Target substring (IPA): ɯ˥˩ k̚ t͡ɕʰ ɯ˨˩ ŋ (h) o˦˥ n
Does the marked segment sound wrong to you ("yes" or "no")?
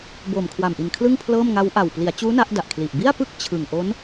yes